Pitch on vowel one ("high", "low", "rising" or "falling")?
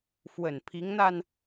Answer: low